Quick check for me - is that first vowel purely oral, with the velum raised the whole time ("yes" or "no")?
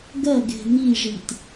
yes